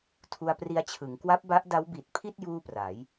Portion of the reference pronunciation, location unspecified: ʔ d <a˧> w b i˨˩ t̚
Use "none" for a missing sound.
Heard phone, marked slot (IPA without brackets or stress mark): a˦˥